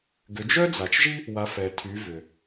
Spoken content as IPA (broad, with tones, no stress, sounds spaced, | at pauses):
ɡ ʏ˩˧ d͡ʒ œ˥ d͡z a˩ t͡ʃ ʒ i˥ | w a˩˧ f ɛ˩ tʰ y˩˧ v ʏ˩